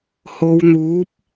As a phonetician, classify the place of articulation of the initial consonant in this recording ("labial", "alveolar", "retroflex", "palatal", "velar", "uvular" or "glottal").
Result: glottal